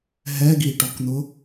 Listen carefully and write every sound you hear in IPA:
ɦ ɛ ɡ i ʈ ɔ k n̪ ʊ

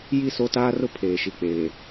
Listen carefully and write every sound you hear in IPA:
j i˦˨ s o˦ t aː˦ r ʊ˦ pʰ eː˨ ʃ i˨ k͡p eː˨

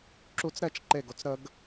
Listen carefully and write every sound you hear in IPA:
ǁ u t͡s ɾ ɛ t͡ʃ ǃ e ɡ o t͡s ɾ ə ɡ

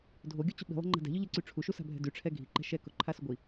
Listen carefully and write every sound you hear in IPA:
dʱ o ɡʲ o t͡ɕ ʊ ɓ i̤ lˠ a̤ ŋ͡ǃ a̤ d ɛ̤ ʎ ʊ ʎ e ǀ y ʈ͡ʂʰ u ʃ u s a̤ bʱ ɛ̤ d y ʈ͡ʂʰ ɛ ɡʱ i ǃ ɛ̤ ʃ ɛ k ʊ ǃʰ a s ʊ ɡʷ i

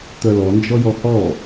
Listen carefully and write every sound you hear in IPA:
t̪ œ l ɔ n d͡ʒ ɔ j ɔ h ɔ

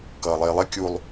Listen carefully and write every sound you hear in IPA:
k ʌː lˠ ɪː lˠ ɪ kʲ u lˠ

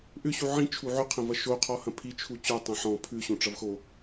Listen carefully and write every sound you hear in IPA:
ʔ ʏ ɕ u ʕ ĩ t͡ʃʰ u ʕ ʏ qʰ ɐ̃ v ɐ ʃ o qʰ ɔ h ɐ̃ pʰ i t͡ʃʰ u t͡ɕ o tˤ ɐ̃ ħ ɔ̃ pʰ ʉ ɕ õ ʈ͡ʂ ɐ v x o

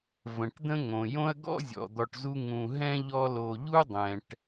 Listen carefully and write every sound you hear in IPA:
v ə̃˩ ʈ d̪ ə̃˦ ŋ õ˩ j õ˦ ɐ̯ ɡ ɔ̰˥ zʲ ɔ̰˩ d̪ ɔ˨ ʈ z u˦ ŋ ũ˨ ɦ ɛ̃˥ ʎ ɔ˦ l o˨ ʎ u˥ dˤ ɛ̃˨ ʈ

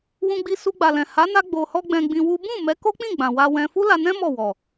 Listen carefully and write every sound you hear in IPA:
w ũ˧ ɡ͡b i˧ s u˧ ɡ͡b a˨ l ɛ̃˨ h a˨˦ n a˧ ɡ͡b o˨ h ɔ˧ ɡ͡b ɛ̃˧ ɡ͡b ĩ˧ w u˦ b ũ˦˨ m ɛ˨˦ k o˦ k͡p ĩ˦˨ ɡ͡b ã˨ w a˧ w ɛ̃˧ f u˦ l a˧ n ɛ̃˦ m ɔ˦˨ w ɔ˨

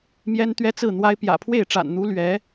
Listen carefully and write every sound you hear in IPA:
m j ɛ˥ n t̪ ɥ ɛ˥ t͡s ɹ̩˥˩ n̪ w a˥ ɪ̯ p j ä̰˨˩ pʰ w e˥˩ ɪ̯ ʈ͡ʂ a̰˨˩ n n̪ u˧˥ l ɥ ɛ˧˥

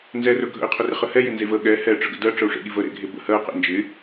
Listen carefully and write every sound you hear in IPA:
n z ɛ r ɵ ɡʱ ə̰ i̯ qʰ ɵ r ɪ χ ə h ɛ j ɪ n z e v ə ɠ ɛ h ɛ ʈ͡ʂ ə ɡ ə̰ d ɜ ʈ͡ʂ ə u̯ ʂ ḛ ɠ i v ə ɾ ḛ ɡʱ e b ə̰ h ɜ q ḛ n d͡ʒ ɪ

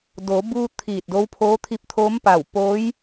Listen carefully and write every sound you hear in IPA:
d o˩˧ b uː˧ t̪ʰ iː˧˩ t̚ d o˧˥ w pʰ oː˧˥ t̪ʰ i˧ p̚ t̪ʰ oː˧˥ m p a˧˩ w p oː˧˥ j

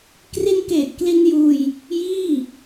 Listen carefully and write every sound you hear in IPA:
k r i˧ n k eː˨˩ t̚ k l i˧ n j uː˧ j | j iː˥˩

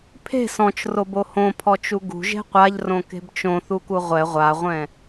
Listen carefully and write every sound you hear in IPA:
pʰ e̤ s ɔ̃ t͡ʃ r o b o h õ pʰ ɔ t͡ʃ u ɡ ṳ ʒ e̤ qʷ a ʎ r õ k e̤ b t͡ʃ õ θ u k u ʁʷ ɛ ʁʷ a ʁʷ ɛ̃

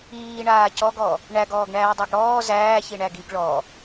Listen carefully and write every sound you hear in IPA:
iː ɳ aː c ɔ ɡ ɔ | ɳ æ ɡ ɔː ɡ ɳ æː dˤ a ɡ ɽ ɔː z æː ç i ɳ æ ɡ i ɡ ɭ ɔ

